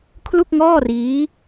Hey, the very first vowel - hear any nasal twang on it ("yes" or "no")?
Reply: no